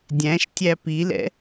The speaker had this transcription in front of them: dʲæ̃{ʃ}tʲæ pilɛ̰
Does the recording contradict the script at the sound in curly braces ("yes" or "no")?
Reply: no